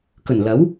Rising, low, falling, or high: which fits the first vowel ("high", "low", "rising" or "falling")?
low